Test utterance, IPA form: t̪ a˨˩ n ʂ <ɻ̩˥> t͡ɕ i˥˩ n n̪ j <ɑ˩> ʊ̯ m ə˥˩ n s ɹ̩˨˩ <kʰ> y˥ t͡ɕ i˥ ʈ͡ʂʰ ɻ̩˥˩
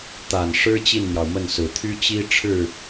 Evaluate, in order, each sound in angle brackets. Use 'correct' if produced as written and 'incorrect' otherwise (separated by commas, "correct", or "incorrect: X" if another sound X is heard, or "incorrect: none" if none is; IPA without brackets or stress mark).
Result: correct, correct, incorrect: t̪ʰ